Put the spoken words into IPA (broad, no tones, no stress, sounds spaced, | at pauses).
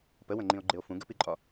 p ə w ə̃ ŋ͡ǃ ĩ o̯ ɡ͡ǃ ɪ o̯ f ũ ɡ ə p i ǃʼ ɒ